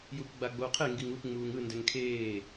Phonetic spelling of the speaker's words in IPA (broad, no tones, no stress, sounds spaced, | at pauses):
j u p ɡ͡b a ɡ͡b o qʰ e ŋ ɡ i ŋ u p ŋ͡m uː ŋ ɯ n d ɛ ŋ kʰ eː